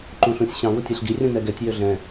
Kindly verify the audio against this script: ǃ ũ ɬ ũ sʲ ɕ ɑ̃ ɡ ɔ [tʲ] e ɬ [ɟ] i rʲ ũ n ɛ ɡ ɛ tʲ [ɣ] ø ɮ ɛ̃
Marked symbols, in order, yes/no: yes, no, no

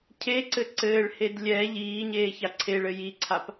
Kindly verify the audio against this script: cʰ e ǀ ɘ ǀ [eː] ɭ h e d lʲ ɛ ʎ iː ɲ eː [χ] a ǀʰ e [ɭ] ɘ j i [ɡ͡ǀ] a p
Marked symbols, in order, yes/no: no, no, yes, no

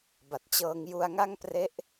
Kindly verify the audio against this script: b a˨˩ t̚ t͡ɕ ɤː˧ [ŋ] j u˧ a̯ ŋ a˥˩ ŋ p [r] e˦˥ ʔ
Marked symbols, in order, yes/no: yes, yes

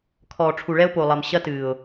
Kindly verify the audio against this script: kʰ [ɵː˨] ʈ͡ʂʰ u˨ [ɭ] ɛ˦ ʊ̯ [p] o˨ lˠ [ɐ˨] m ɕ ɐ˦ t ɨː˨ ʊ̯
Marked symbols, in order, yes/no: no, yes, yes, yes

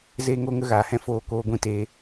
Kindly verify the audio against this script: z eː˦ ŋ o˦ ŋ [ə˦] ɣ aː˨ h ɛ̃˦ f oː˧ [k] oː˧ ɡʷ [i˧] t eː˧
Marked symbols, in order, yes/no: yes, yes, no

